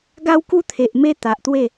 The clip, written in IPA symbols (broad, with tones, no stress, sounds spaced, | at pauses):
ɡ a˦ w k u˦ t̪ʰ e˨ ʔ m e˧ t̪ a˨ ʔ t̪ w e˥˧